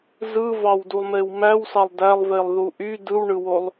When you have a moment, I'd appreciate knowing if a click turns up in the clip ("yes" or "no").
no